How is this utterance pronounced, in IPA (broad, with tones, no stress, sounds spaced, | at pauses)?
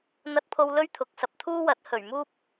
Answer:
n̪ ɐ˧ t̚ pʰ o˧ w l ɵ˥ ɥ t̪ʰ ʊ˨ k̚ s ɐ˨ p̚ t̪ʰ uː˥ w ɐ˨˥ t̚ h ɵ˨˩ ɥ m uː˥ p̚